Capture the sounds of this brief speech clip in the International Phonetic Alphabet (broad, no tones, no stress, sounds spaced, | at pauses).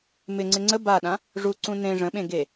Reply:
m ɪ ŋ͡ǀ ɪ ŋ͡ǀ ə b a ɗ ã | ʐ u ǀ ũ n ẽ ʐ ə̃ ɓ ẽ ɡ e